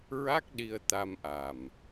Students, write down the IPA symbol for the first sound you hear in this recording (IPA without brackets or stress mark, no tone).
ɹ